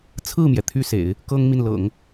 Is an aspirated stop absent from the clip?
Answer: no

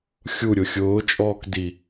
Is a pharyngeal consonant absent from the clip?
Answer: yes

